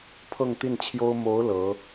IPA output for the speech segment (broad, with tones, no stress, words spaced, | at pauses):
pʰɤ˥˧ŋt̪i˥˩nt͡ɕʰjo˥ʊ̯ mo˧˥ʊ̯ lɤ˧˥